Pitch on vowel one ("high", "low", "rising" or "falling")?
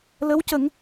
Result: rising